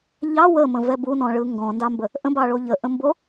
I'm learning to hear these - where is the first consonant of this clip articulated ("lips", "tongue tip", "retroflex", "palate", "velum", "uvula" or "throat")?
palate